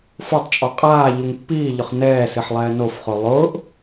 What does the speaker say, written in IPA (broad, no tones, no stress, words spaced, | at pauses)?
fʊtˤt͡ʃʼɔ qʼaːʎuŋ pːiːʎʊχ nɛːsɪħ lˠɛːnofχo lˠʊːʔ